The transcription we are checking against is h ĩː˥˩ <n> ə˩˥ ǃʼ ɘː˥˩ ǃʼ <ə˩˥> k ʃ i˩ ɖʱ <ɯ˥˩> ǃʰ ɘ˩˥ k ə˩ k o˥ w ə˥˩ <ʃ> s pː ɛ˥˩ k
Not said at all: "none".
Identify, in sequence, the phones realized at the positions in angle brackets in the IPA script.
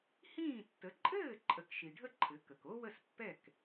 tː, ə˩˥, ə˥˩, none

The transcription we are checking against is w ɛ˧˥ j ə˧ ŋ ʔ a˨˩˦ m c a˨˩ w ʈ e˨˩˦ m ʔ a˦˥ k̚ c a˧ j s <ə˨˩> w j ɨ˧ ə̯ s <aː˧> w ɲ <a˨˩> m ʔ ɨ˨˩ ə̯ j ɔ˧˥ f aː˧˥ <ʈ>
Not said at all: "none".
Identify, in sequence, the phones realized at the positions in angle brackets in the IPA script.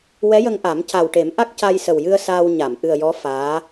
ə˨˩, aː˧, a˨˩˨, none

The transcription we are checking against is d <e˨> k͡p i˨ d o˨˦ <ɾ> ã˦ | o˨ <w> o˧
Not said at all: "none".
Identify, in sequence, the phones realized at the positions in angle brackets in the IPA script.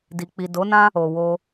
i˨, n, w

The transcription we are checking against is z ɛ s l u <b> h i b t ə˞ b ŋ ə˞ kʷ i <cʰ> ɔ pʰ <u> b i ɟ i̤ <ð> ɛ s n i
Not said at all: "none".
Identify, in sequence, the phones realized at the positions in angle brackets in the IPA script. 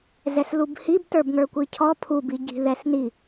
b, cʰ, u, ð

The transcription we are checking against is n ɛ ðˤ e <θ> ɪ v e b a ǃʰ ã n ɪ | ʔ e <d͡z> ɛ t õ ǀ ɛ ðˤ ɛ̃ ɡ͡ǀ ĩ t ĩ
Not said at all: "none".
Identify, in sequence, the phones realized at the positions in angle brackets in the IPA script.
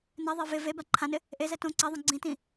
v, z

